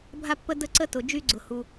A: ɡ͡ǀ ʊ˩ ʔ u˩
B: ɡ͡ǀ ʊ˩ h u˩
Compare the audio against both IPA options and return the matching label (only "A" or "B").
B